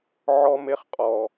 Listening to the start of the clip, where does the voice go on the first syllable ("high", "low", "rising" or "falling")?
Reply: high